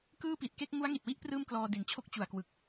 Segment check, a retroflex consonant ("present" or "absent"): absent